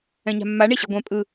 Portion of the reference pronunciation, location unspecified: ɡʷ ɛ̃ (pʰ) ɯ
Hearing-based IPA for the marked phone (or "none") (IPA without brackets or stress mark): pʼ